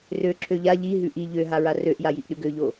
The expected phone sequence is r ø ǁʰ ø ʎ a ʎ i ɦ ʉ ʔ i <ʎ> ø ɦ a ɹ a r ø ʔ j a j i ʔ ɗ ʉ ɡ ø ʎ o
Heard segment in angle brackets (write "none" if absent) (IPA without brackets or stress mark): ʎ